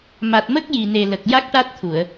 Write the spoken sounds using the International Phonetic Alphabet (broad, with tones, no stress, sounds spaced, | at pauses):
m a˨˩ t̚ m ə˦˥ k̚ j i˨˩ n e˨˩ l ə˨˩ k̚ j a˦˥ k̚ ʈ a˦˥ t̚ t̪ʰ u˨˩˨ ə̯